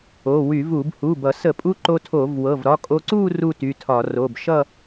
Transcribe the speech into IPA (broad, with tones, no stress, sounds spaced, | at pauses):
o˩˧˩ w y˧˩˧ v u˧˩˧ b h u˩˧˩ b ʌ˧˩˧ s ə˧˩˧ pʼ u˧ ǃ o˧ tʰ o˧˩˧ v w ɤ˩˧˩ v ɾ ɒ˧ kʼ o˧ ǀ u˥˧ r u˥˧ t y˩˧˩ tʰ ɒ˧˩˧ r o˩˧˩ b ʃ ʌ˥˧